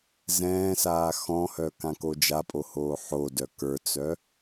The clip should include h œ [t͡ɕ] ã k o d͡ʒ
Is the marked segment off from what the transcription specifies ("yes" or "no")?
yes